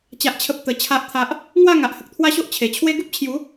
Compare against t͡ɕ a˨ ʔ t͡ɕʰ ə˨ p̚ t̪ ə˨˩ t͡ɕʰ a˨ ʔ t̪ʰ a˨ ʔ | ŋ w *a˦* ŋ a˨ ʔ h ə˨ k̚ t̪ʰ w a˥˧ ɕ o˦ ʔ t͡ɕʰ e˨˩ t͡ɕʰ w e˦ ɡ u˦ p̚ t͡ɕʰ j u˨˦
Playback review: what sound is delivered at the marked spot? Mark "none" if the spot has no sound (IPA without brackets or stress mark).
a˥˧